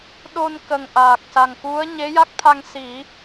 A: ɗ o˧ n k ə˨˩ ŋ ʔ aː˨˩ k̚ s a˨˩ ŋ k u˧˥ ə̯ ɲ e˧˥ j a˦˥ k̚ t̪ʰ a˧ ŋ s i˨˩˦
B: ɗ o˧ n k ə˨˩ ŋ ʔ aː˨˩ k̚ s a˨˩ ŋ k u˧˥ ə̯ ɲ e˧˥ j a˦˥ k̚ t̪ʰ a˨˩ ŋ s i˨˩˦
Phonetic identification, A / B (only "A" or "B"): A